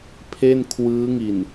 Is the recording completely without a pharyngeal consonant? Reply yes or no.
yes